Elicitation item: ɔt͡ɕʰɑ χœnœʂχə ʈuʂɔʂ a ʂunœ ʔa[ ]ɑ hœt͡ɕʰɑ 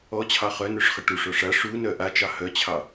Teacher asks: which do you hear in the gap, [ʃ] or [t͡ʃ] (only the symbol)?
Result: t͡ʃ